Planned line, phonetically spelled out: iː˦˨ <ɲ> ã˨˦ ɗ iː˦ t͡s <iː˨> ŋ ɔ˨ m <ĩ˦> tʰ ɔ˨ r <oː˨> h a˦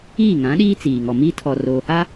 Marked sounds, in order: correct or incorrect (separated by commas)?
incorrect, correct, incorrect, correct